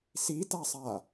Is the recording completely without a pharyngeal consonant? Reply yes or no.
yes